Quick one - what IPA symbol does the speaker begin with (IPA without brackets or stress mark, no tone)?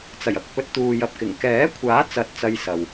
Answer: t͡s